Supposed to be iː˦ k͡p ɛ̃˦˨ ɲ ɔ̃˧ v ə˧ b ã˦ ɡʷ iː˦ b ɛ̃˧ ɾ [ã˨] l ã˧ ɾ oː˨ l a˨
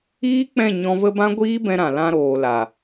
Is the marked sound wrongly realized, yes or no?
no